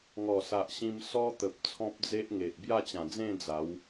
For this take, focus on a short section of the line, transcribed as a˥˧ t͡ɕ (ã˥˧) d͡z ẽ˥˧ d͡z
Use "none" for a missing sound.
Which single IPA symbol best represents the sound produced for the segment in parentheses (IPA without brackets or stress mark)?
ã˨˩